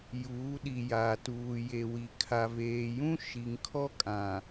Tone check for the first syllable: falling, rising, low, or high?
rising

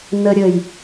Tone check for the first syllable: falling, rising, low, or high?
high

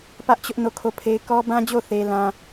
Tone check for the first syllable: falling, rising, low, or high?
high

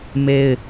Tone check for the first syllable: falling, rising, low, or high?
high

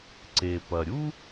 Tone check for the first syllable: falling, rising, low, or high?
low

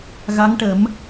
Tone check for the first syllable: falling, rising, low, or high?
rising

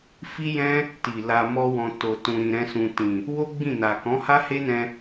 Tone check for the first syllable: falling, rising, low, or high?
high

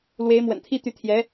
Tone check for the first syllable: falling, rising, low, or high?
rising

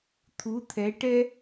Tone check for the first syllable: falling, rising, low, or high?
rising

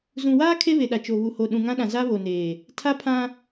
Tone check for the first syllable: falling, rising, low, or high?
low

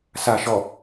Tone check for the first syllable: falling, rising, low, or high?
low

